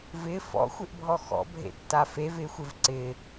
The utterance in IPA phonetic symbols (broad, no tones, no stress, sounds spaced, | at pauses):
v ɪ f ɔ̰ xʷ ɪ ʔ bʱ ɔ x ɔ̰ bʱ ḛ tː a f e v ɪ xʷ ɪ v ǀ ɪ